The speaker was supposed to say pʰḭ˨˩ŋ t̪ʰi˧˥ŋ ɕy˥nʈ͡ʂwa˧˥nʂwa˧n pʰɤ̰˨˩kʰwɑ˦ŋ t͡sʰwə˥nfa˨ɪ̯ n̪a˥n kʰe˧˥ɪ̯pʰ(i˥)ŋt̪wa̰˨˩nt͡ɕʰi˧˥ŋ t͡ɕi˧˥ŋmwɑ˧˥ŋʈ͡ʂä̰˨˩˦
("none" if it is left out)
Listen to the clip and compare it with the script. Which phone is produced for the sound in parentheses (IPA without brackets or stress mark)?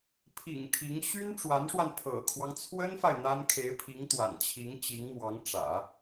i˧˥